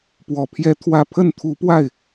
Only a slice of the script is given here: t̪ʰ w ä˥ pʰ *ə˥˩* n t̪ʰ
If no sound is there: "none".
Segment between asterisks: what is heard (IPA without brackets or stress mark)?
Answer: ə˥˩